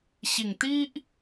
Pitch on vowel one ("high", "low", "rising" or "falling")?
low